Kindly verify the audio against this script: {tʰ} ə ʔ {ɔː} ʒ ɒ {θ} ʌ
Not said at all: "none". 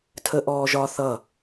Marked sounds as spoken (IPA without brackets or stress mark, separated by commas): tʰ, ɔː, θ